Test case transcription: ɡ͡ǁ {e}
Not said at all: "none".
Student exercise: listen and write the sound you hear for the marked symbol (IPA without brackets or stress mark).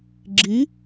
i